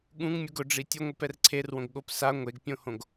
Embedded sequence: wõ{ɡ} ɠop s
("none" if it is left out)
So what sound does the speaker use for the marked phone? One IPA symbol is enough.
ɡ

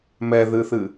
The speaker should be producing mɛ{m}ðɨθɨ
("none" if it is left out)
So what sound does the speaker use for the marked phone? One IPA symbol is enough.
none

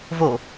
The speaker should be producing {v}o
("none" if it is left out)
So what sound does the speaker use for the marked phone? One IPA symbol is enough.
v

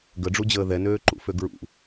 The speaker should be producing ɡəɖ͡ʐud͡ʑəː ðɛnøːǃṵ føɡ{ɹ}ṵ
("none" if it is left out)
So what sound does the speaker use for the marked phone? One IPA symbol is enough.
ɹ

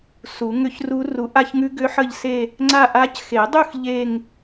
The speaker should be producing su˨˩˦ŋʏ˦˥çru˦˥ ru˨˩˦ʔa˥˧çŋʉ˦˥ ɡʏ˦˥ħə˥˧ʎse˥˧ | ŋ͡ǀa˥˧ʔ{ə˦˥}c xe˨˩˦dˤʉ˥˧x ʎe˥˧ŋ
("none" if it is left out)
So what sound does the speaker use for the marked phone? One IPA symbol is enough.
a˦˥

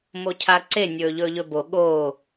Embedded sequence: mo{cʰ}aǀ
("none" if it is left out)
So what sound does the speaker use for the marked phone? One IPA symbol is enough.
cʰ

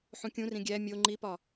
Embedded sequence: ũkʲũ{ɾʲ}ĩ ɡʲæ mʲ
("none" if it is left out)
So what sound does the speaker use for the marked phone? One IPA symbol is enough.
r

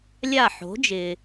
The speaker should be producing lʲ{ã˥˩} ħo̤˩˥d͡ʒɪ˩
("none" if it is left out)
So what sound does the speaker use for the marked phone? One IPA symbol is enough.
a˥˩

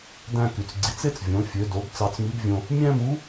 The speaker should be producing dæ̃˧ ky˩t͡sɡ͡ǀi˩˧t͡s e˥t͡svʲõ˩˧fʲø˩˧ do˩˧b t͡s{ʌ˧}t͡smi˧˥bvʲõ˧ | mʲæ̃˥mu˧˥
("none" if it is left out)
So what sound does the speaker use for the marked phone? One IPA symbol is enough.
ɑ˧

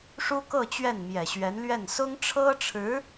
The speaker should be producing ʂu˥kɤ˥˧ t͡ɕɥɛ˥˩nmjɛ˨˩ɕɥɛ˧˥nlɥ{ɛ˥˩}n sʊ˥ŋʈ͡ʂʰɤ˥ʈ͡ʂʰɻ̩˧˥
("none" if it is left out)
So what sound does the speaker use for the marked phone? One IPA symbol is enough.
ɛ˥˩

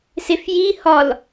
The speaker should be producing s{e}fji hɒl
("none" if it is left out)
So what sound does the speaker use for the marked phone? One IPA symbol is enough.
e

